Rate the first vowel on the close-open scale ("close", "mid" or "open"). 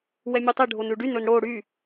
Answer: mid